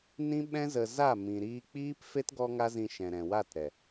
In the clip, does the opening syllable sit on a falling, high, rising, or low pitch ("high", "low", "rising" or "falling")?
high